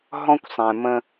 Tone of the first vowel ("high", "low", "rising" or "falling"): high